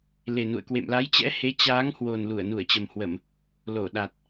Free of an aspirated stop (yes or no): yes